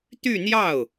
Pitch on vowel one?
falling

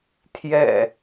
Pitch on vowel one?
low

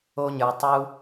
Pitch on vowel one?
high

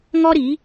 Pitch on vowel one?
high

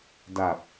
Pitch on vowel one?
low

